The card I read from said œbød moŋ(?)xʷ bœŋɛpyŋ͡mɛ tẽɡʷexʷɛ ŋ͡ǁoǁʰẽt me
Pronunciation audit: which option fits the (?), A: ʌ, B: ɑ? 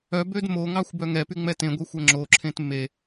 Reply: B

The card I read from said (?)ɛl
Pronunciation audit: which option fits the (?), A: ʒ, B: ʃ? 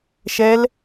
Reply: B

